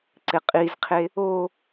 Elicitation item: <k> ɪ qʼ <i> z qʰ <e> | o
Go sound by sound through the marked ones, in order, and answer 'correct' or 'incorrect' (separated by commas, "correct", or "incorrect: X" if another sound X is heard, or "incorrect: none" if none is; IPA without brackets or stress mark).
incorrect: ǀ, correct, correct